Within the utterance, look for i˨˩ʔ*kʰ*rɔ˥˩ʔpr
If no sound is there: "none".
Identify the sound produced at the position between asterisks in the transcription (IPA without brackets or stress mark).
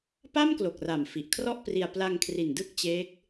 kʰ